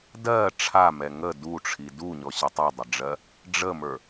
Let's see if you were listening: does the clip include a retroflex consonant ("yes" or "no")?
yes